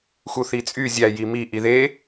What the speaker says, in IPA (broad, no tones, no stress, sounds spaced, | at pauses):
x u θ i t͡sʼ y zʲ æ j i m i ʔ i ð e